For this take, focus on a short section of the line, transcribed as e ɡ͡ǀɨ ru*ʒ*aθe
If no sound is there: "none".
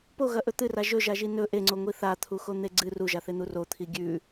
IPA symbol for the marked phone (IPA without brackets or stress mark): ʒ